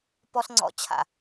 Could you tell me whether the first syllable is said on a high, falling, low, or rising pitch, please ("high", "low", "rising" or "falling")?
high